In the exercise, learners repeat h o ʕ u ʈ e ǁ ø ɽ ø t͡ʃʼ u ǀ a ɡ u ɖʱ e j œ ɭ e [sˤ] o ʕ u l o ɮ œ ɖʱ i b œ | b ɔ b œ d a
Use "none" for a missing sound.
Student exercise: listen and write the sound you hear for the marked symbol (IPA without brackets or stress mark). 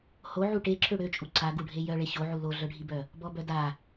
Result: ɕ